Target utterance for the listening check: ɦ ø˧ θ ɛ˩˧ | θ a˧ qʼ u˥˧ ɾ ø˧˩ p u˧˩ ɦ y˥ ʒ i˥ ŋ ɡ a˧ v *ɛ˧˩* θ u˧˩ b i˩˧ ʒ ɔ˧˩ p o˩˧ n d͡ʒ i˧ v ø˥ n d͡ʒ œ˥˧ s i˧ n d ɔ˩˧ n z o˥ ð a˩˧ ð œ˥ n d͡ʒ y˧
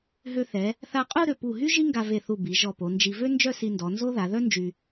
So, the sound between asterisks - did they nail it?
no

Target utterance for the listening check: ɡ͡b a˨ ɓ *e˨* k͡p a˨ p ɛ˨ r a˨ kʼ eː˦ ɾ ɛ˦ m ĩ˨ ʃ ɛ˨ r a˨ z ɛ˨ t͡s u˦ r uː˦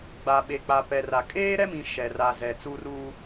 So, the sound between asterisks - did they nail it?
yes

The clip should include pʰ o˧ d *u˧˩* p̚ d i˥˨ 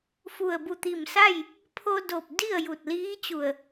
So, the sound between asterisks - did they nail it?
no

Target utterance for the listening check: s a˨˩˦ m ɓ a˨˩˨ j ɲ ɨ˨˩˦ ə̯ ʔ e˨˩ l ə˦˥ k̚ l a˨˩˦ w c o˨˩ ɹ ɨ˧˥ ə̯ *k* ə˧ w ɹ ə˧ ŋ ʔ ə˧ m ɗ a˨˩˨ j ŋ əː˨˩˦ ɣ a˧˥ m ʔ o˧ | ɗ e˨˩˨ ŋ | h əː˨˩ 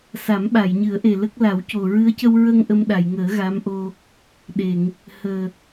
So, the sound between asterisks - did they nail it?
no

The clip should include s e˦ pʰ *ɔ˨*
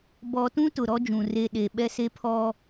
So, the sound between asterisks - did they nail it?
no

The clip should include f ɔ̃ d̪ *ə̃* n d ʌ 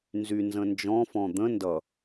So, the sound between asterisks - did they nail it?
yes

